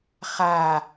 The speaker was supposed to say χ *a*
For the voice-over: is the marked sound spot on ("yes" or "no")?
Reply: yes